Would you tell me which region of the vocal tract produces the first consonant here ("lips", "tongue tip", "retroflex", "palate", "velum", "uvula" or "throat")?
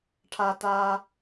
retroflex